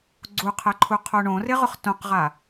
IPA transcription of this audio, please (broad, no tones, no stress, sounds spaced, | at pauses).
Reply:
ɡ͡ǀ u qʰ ɛ ǃʰ u qʰ o ɳ õ r ɪ ʁ ʊ χ t õ q ʁ a